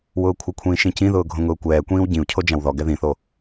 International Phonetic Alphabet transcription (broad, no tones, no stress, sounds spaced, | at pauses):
w ʊː kʷʰ ɪ kʷʰ ĩː ʃ ĩ c ĩ ð ʊː ɡʱ õ ŋ ʊː kʷ ɛː kʷ ĩː w ɟ ĩ u̯ cʰ o d͡ʒ ã w ð ɔ ɡ ɛ ð ĩ θ o